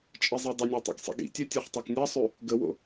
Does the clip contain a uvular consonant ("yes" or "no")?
yes